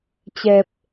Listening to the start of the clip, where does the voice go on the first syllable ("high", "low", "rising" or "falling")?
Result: low